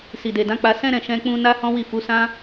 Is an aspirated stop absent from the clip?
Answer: yes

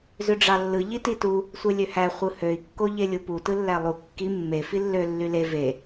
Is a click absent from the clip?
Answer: yes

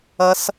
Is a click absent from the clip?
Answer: yes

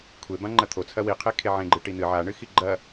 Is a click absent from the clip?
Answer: no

